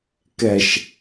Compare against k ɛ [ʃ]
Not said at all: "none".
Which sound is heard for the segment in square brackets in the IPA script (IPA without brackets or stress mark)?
ʃ